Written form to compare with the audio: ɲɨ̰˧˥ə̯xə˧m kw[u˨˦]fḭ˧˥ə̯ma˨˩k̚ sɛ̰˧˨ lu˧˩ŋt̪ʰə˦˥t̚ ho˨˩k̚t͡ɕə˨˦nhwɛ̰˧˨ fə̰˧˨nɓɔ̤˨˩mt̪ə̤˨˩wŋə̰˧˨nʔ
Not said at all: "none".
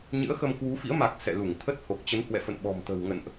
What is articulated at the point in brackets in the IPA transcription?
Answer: u˨˦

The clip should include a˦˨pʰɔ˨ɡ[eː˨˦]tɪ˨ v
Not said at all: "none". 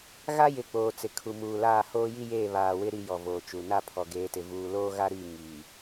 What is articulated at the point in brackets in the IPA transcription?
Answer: eː˨˦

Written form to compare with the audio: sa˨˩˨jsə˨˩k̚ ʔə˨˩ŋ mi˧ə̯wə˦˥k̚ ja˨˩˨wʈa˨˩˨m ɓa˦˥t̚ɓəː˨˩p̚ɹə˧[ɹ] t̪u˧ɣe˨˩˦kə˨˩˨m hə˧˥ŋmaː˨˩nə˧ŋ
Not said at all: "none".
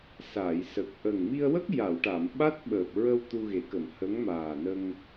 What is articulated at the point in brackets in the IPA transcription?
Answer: w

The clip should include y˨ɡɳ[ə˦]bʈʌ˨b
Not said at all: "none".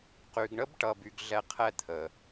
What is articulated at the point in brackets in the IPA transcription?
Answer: ə˥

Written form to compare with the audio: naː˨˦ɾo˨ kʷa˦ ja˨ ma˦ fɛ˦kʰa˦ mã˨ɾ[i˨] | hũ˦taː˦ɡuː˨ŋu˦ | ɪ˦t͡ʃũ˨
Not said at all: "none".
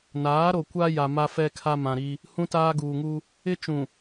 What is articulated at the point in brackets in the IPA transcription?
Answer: i˦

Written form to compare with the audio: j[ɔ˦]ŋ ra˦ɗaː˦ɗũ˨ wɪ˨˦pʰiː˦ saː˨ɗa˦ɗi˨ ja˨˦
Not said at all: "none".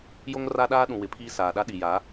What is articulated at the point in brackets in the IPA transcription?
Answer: o˦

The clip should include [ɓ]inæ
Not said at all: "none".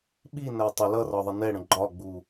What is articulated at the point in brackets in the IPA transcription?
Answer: ɓ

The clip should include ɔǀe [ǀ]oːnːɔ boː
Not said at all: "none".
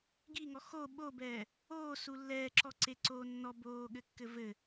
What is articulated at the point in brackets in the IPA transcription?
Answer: ǀ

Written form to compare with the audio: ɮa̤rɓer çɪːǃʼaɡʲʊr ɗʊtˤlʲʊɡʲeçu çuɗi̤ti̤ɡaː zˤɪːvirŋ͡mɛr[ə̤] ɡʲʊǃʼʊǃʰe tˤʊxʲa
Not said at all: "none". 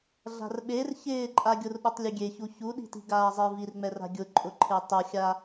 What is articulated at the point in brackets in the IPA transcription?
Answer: a̤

